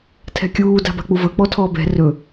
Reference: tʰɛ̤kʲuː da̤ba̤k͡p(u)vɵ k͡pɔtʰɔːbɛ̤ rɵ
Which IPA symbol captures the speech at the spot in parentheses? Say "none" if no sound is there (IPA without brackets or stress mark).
u